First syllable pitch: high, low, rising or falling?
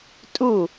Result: falling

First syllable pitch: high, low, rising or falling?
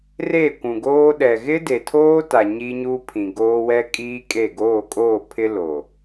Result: falling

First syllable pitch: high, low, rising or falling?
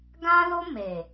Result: high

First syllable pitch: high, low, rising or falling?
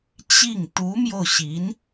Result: falling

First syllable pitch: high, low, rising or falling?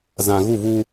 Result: low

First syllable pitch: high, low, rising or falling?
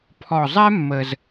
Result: low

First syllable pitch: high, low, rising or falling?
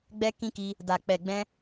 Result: high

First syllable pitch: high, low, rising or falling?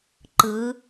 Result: rising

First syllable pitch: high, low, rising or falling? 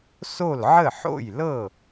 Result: falling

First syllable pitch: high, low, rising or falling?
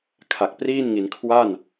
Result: low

